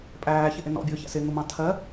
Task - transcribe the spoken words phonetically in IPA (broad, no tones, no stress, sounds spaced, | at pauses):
pʼ æː ç ɪ ʔ ɪ n ɔ̰ bʲ ʊː ç æ̰ s ɪ ŋ ʊ m ɑ̃ tʰ ɜ